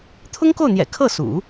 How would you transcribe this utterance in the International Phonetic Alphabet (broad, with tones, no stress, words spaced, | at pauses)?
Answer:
t̪ʰʊ˥ŋko˥˩ʊ̯n̪jɛ̰˨˩ kʰɤ˥˩sṵ˨˩˦